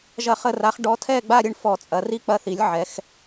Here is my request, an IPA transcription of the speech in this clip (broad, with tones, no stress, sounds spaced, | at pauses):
ʒ ɐ˥˧ χ ə˥˧ r a˧˥ χ ɖ ɔ˧˥ tʰ ɛ˥˧ ɡ͡b a˥˧ ɾʲ ə˥˧ ɳ f ɔ˥˧ t͡sʼ ɐ˧˥ r i˥˧ k͡p ɐ˥˧ θ i˧˥ lʲ ʕ ɛ˧˥ x